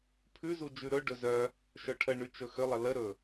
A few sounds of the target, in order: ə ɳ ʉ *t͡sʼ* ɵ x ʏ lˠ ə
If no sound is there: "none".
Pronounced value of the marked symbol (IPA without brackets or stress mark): t͡ʃ